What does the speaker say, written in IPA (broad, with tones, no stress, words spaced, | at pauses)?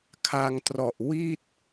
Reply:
kʰa˧ŋtrɔ˨˩ʔ wi˥˩t̚